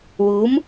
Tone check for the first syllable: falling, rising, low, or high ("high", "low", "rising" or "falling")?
rising